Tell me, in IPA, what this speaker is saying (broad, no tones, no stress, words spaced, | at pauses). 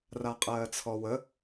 raqʼɜːt͡sʰɔwə